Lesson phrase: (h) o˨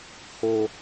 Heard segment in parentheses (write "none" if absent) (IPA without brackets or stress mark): h